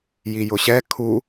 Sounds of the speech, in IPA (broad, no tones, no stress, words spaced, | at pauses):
jijʊɕɛ kʰu